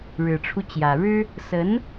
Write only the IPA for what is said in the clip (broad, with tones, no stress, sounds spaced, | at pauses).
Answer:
ɻ ɻ̩˨˩ ʈ͡ʂʰ u˦ t͡ɕ j ä˨˩ ɻ ɻ̩˥ | s ə˧˥ n